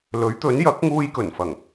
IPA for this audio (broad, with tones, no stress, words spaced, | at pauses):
lɵ˨˥ɥt̪ɵ˨˥n jɐ˨˥k̚ŋuː˧jkɵ˨˩nfɐ˨˩ŋ